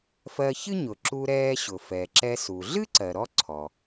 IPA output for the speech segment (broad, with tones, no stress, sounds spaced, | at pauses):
f ɜ˧ ç ɨ˥ ɲ ʊ˩ ǁ u˧ ɾ ɛː˧ ɕ ʊ˩ f ɛ˩ ǁ ɛ˧ s u˩ ɮ ɨ˥ ǀ ɜ˩ ɾ ɔ˥ ǀʰ ɔ˩